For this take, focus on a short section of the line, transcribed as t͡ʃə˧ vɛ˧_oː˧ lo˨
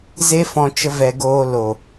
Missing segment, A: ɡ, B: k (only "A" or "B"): A